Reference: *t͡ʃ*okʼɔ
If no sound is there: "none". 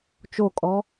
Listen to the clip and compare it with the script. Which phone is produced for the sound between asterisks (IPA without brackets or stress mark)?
t͡ʃ